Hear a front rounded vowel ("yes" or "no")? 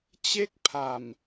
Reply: no